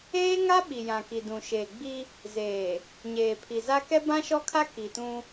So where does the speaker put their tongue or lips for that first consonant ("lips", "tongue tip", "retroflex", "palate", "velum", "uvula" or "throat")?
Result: velum